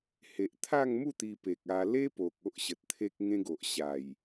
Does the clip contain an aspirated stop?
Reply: yes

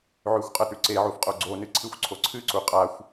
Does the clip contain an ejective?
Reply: yes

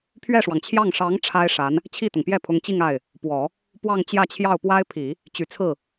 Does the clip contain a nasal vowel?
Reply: no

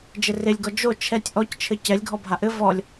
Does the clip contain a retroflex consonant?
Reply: no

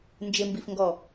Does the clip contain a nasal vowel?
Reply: no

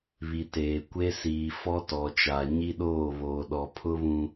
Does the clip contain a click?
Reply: no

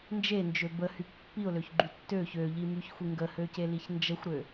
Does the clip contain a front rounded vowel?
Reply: yes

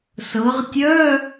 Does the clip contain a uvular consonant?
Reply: yes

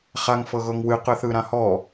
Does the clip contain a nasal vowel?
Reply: yes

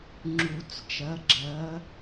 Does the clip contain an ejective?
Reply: no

